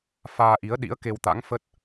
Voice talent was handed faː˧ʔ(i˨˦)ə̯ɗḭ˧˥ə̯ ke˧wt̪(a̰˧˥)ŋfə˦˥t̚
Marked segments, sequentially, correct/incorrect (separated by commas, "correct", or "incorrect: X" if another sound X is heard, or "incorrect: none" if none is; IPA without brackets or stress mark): correct, correct